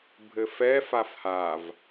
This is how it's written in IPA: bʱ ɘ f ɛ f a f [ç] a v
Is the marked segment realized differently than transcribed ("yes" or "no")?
yes